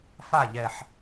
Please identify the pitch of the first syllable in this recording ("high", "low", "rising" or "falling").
falling